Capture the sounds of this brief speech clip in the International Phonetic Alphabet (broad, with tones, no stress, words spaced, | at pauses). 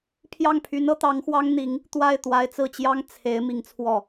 pʰjɑ˥˩ŋpʰy˧˥nɤ˧˥ t̪ɑ˧˥ŋxwɑ˥ŋ n̪i˧˥ŋ | t̪wa˥˩ɪ̯ t̪wa˧˥ɪ̯t͡sɹ̩˥˩t͡ɕjɑ˥ŋ t͡sʰe˧˥ɪ̯ mi˧˥ŋt͡sʰwɔ˥˩